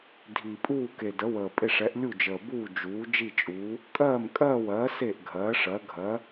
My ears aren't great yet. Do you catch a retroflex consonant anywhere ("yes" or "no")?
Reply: yes